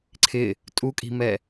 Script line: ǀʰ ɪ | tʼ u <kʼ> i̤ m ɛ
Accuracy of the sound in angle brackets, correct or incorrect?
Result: correct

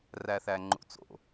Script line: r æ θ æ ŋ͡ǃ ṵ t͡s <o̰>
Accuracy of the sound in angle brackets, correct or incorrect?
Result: correct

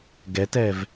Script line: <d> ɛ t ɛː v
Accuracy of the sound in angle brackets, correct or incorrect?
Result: incorrect: ɡ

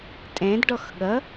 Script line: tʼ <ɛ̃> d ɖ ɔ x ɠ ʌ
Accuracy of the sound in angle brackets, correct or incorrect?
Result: correct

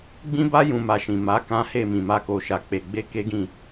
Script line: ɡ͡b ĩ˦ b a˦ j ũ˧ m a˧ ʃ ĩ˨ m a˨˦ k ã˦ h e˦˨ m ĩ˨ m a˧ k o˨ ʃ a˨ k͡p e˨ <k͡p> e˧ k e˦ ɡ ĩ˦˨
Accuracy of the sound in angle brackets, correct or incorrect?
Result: incorrect: ɡ͡b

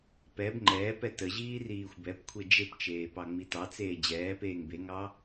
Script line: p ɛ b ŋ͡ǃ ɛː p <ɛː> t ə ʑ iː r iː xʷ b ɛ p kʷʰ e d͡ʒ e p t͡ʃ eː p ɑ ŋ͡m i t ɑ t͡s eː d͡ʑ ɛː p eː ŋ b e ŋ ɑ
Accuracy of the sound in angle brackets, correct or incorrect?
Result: incorrect: ɛ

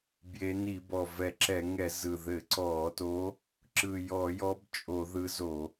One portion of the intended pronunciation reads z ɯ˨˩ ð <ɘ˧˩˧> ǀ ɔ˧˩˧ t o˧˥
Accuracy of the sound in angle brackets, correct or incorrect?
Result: correct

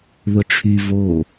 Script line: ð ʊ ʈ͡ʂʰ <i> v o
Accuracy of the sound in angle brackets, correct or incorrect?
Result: incorrect: y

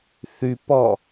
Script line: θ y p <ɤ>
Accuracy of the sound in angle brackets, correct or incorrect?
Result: incorrect: ɔ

